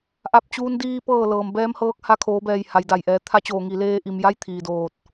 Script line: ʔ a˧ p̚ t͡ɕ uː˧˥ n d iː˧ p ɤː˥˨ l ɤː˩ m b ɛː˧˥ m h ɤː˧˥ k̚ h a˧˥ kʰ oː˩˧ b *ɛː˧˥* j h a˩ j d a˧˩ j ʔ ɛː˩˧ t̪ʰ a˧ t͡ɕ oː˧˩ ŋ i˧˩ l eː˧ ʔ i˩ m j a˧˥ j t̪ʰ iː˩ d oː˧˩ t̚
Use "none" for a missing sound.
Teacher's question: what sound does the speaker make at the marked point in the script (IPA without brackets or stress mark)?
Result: ɛː˧˩